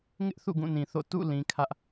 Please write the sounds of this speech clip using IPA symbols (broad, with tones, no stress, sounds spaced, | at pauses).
ŋ ɪ˦ ʔ θ ṵ˦˨ ɡ ũ˦˨ n ĩ˨ θ o̰˦˨ t ṵ˦˨ l ĩ˦ kʰ ä˦ ʔ